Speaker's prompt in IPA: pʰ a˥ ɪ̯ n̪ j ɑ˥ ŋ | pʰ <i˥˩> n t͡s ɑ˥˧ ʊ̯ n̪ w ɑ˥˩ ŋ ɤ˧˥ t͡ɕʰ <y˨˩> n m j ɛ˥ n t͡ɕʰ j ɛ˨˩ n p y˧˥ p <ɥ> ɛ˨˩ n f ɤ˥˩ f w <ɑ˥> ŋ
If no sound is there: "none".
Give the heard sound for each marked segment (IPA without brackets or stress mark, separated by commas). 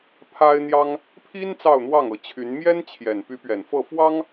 i˥, y˧˥, ɥ, ɑ˥